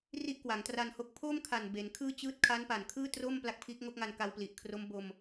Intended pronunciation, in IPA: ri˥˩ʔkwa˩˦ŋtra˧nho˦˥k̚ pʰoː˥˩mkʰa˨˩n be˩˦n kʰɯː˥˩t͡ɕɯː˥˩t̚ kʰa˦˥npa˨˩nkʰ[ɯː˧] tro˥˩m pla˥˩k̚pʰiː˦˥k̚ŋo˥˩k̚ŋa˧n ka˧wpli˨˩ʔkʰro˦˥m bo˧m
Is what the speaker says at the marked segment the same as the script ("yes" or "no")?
no